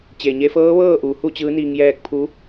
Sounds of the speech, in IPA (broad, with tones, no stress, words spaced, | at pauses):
t͡ɕeː˩ɲe˧fɤː˧˥ ʋɤː˥˨ʔuː˩˧ hu˥˨t͡ɕɯː˧˥niː˧ŋ jɛː˧k̚pʰu˧˥